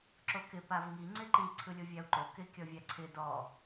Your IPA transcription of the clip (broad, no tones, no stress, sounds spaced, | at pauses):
ǁ o k ɪ p a v ŋ i ŋ͡ǀ ɪ ǃ i ǀʰ ɯ lʲ o vʲ a u̯ ǃ o k ɪ kʲ ɔ vʲ a ǀʰ ɪ d ɔ